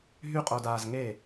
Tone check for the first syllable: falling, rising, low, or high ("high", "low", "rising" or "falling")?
high